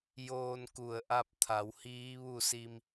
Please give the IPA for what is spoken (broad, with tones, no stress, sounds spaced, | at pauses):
j oː˧ n k u˧˩ ə̯ ʔ a˧ p̚ t̪ʰ a˩˧ w h iː˧˥ ʋ u˥˨ s i˧ m